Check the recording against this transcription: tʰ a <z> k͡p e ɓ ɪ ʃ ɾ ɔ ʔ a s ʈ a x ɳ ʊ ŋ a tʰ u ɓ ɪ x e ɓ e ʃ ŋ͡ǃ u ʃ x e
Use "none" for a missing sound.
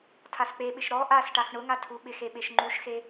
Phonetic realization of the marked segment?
s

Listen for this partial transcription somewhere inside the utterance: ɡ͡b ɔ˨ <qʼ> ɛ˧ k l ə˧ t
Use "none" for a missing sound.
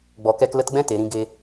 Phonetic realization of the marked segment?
k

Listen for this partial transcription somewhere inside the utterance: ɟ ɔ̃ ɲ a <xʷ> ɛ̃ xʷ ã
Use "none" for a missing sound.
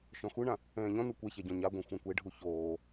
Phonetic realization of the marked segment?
ɡʷ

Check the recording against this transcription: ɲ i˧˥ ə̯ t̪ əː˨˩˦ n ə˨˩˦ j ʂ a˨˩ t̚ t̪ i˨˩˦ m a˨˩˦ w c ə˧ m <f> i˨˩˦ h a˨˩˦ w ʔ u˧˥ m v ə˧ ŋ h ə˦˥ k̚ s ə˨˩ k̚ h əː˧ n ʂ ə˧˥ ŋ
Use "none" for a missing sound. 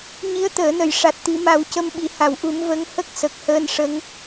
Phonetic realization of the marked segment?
ɓ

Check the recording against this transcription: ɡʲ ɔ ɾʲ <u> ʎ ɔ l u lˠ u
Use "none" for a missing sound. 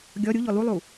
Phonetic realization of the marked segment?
u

